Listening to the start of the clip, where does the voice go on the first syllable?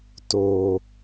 low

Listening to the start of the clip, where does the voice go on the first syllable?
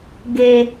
high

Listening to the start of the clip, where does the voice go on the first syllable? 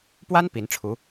high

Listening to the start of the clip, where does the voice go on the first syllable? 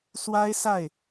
high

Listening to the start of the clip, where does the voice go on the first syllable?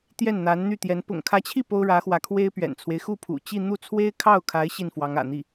falling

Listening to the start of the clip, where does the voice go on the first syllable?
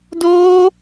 high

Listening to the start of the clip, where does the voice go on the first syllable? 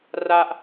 high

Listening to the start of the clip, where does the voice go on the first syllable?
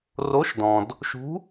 rising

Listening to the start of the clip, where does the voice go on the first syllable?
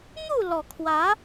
falling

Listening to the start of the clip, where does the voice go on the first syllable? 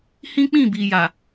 high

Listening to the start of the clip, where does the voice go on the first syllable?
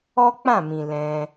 high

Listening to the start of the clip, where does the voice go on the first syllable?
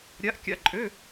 rising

